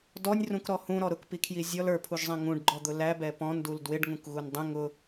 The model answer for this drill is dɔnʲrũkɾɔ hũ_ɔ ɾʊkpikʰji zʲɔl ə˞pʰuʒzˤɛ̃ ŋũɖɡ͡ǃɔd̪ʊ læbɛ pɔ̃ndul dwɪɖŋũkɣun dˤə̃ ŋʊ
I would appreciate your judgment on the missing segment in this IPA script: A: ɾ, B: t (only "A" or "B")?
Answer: A